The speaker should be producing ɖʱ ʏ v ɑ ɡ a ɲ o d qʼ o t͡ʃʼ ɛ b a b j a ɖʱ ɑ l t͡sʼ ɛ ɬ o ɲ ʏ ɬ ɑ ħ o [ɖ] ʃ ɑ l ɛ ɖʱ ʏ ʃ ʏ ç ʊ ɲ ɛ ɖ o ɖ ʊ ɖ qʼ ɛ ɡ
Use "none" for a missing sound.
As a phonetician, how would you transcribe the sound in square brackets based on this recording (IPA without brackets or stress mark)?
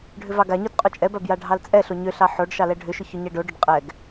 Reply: ɖ